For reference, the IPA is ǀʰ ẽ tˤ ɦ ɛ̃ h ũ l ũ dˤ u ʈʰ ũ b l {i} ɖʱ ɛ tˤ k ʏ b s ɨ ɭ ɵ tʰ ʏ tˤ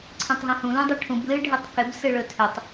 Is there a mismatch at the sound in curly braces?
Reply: yes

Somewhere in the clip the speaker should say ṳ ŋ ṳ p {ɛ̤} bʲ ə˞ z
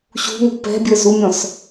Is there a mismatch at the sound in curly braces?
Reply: no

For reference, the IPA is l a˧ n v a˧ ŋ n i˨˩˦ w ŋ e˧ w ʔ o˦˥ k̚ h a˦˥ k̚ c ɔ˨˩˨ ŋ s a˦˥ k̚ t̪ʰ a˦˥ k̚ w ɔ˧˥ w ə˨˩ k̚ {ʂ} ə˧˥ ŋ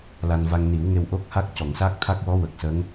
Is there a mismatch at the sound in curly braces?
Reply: yes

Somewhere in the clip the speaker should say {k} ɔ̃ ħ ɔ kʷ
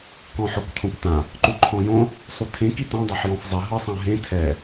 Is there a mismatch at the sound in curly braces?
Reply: no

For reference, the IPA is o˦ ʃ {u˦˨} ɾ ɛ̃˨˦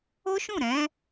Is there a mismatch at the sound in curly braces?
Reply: yes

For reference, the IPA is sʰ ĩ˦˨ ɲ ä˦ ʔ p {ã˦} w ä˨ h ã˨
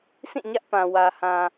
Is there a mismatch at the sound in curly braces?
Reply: yes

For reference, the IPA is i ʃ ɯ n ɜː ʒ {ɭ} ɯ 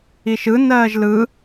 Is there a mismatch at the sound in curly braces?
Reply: yes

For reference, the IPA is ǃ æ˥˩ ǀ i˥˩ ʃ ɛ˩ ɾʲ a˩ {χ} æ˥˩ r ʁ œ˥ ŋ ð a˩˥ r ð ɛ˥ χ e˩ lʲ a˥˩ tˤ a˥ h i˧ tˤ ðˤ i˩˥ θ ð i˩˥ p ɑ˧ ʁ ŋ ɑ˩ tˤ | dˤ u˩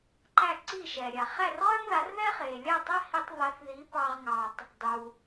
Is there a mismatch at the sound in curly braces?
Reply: no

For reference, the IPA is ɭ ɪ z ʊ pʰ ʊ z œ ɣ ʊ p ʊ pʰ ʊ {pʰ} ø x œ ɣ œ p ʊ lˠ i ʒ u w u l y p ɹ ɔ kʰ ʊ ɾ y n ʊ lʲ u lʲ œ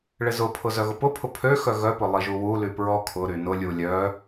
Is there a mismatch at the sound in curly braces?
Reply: no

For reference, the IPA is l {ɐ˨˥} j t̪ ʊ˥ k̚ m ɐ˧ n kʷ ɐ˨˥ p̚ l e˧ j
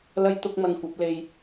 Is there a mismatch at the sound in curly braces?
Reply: yes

